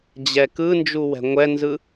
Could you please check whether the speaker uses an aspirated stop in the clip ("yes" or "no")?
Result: no